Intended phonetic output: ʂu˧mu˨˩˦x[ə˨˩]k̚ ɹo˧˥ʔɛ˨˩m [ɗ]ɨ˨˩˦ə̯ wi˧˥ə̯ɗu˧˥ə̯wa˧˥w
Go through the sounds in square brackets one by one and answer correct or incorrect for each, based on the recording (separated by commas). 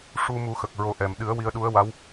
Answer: correct, correct